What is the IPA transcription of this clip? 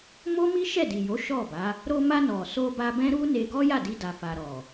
m o˦ m i˦ ʃ ɛ˦˨ d i˨ j o˨˦ ʃ ɔ˦˨ b a˨˦ | ɾ o˧ m a˧ n ɔ˨ s o˧ b a˧ b ɛ̃˦ ɾ u˦ n e˧ ɡ ɔ˦ j a˦˨ d i˧ d a˨ f a˨ ɾ ɔ˨

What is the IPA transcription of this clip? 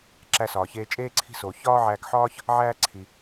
ǁ æ˧ s ɒː˩ ç eː˧ t͡ʃʼ eː˥ ǀʰ i̤˥ s oː˩ ç ɒː˥ ʕ æː˧ k ħ ɒː˥ ç | ʕ æː˥ ǀʰ i˩

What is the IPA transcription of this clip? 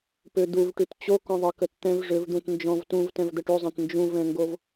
p ʏ d̪ u v ʈ y t t͡ɕ o k ɔ̃ ðˤ ə k ə t t̪ ɛ̃ v ʐ ʏ v d̪ ũ t n d͡ʒ ɔ̃ v t ũ v t ɛ̃ v d̪ ə ʈ y zˤ ɛ̃ t n d͡ʒ ũ v ɛ̃ ŋ ɡ o v

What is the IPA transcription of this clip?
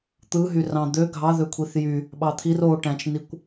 t̪ ɯ ɦ y r ɑ̃ d̪ ø ɡʱ ɑ ð ø kʷʰ i θ j y | ɓ ɑ t̪ʰ i r o ʈ æ̃ t͡ʃ n i kʷ

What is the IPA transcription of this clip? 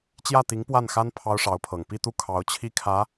t͡ɕ j ä˥˩ t̪ i˧˥ ŋ p w a˥˩ n x a˥ n pʰ ɑ˥ ʊ̯ ʂ ɑ˧˥ ʊ̯ pʰ ɤ˨˩ ŋ p i˥˧ t̪ u˥˩ kʰ ɑ˧˥ ʊ̯ t͡ɕʰ i˥ kʰ ä˧˥

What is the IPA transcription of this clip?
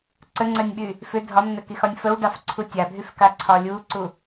ǀ ə ŋ͡ǀ ə nʲ ɓ y | f ʏ dʱ ɒ m n ə k i x ɒ nʲ f ə w ɖ ɑ f ǀʰ u tʲ a bʱ y f k a ǀʰ ɒ lʲ u ǀ u

